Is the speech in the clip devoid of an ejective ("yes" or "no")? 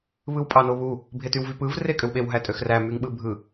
no